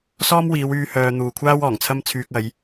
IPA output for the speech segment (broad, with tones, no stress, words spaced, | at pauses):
sɔː˥mwiː˨˧wyː˧ hœː˧ n̪uː˨kʷʰaː˥w ɔː˨˩ŋt͡sʰɐ˥m t͡sʰyː˧k̚ɐ˨˧j